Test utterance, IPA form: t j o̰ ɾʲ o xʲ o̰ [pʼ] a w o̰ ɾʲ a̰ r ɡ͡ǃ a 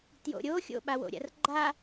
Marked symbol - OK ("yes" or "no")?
no